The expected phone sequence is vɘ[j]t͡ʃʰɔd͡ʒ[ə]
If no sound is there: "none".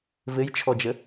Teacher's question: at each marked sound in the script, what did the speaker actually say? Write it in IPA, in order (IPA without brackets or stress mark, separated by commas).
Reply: j, ə